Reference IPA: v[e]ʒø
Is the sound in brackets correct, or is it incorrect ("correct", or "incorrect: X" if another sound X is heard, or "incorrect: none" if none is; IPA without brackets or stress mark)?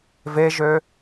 correct